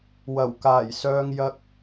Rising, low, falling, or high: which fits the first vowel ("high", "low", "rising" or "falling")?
low